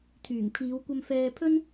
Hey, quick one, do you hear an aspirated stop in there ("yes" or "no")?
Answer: yes